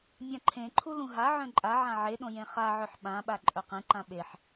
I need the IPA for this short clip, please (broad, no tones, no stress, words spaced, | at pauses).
mʲãǃʰẽǃʰu lũɦaʕœ̃ ǃʼaʕã ʕeɗõ jẽχaʕœħ ɓãɓa ǃʼœqẽǃã ɓeħ